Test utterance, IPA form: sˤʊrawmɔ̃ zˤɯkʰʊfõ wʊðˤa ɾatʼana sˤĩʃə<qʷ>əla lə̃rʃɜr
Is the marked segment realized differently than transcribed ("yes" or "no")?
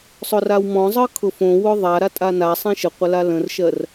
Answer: no